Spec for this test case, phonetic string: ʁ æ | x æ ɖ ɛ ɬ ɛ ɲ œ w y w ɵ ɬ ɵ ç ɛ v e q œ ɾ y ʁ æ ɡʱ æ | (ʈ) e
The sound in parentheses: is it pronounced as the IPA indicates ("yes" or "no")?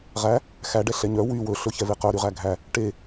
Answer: yes